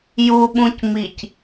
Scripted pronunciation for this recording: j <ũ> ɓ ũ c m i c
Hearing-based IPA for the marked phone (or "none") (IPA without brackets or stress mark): u